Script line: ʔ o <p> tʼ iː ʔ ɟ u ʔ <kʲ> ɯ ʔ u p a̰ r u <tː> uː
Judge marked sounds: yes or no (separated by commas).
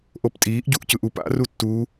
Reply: yes, no, yes